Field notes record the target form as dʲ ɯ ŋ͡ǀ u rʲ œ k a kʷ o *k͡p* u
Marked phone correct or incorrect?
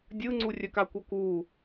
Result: incorrect